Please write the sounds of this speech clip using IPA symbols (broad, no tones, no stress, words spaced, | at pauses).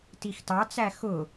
tixtɑt͡sæ xʊ